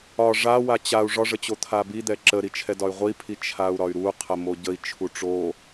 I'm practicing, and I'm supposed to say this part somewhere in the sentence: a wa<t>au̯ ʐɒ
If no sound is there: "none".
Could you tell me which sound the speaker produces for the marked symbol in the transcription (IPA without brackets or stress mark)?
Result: t͡ɕ